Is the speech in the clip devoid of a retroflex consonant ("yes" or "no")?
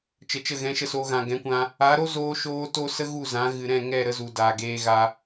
yes